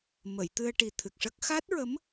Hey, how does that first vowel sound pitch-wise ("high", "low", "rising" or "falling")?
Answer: low